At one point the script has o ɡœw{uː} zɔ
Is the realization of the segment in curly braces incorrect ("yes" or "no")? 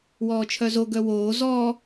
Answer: yes